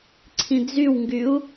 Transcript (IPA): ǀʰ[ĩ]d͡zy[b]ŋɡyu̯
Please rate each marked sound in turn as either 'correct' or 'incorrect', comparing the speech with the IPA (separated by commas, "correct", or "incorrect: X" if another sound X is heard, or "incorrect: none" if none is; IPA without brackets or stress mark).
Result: correct, incorrect: w